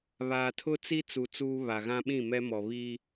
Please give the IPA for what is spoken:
βaː˨tʰʊ˦t͡si˦ t͡su˨ t͡suː˦βa˨ ɣã˦ɓĩ˦˨mɛ˦mɔ˨ βi˦

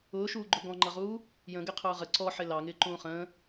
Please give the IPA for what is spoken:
ʊːʃuːɡ͡ǃʊ ɡɔ̃ŋ͡ǃʌʁuː | jə̃ɡɪqʰʊː ʁə ǀɔħɪ lɑŋɪːǃũː χə̃ː

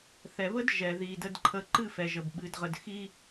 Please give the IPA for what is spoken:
θɛ˨βə˦d ʒɛ˨ði˨də˧d ǃʰə˧ ǃɨ˦˨fɛ˨ʒə˨b ɓɨ˨dʁə˨d xi˧

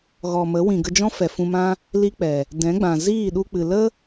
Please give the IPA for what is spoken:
ɣɔ˨mə˨˦wĩ˨ ɡə˧d͡ʒɔ̃˦ fɛ˨fũ˧mã˦ | li˦k͡pɛ˨ | dɛ̃˨˦ɡ͡bã˨ ziː˦˨ɗu˧k͡pɨ˨ lə˦

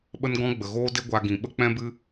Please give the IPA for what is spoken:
ɓə˦nɡɔ̃˦ ɡ͡bə˨ɣoː˦de˦ ɡʷa˧ ɡĩ˨ɓə˦ k͡pɛ̃˦bɨ˦

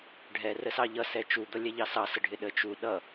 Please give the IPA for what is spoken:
ɖʱɛ rəsɑʎʌ sɛt͡ʃu d̪ʌlʲɛʎɑsɑ səɖʱɪɗə t͡ʃu ɗʌ

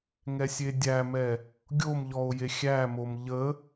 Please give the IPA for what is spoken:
ŋɛsʲedʲæmɛ | ɡʲomʎɔo̯ jexʲæmom ʎə

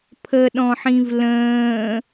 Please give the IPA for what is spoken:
pʰəɗɔ̃ħĩv lə̃ː

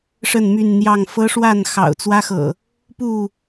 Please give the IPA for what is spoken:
ʂə˥˨nmy˥˨nn̪jɑ˥˨ŋ fɤ˦ ʂwa˥˨n xɑ̰˨˩ʊ̯t͡swä˦xɤ̰˨˩ | pu˥˨

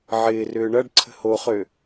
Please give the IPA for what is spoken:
ʕɪːrʏː ɳɐɖǀʰə̤ hoχø

